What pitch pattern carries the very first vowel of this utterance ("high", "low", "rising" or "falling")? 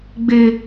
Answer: high